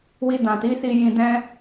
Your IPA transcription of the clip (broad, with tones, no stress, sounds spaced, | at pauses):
w i˧ d ã˨ t i˨˦ s i˧ j ĩ˧ d ɛ̃˦